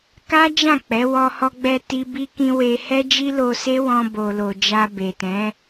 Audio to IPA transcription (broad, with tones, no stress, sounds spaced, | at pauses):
k a˦ d͡ʒ ã˦˨ k͡p ɛ˨˦ w ɔ˧ h ɔ˧ ɡ͡b ɛ˧ t i˧ b i˧ k ĩ˧ w e˧ h ɛ˦ d͡ʒ i˦ l o˧ s e˦ w ɔ̃˧ b o˨ l o˨ d͡ʒ a˧ b e˨ t ɛ̃˨˦